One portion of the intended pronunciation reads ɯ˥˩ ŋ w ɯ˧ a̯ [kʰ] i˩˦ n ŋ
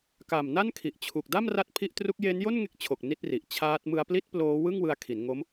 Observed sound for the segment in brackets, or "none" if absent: kʰ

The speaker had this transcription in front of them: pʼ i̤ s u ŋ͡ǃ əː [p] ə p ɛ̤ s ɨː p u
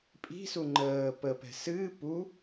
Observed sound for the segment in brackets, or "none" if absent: p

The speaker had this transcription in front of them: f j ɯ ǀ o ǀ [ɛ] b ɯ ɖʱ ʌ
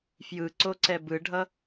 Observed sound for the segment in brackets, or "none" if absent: ɛ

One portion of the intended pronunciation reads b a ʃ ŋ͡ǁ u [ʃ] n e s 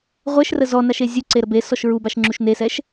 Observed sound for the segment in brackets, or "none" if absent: ʃ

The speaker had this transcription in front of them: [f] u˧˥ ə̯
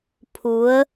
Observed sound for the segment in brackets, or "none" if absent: pʰ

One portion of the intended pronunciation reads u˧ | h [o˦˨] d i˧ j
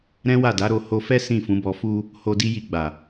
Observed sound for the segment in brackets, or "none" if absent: o˧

